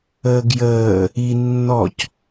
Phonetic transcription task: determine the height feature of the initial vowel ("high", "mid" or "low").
mid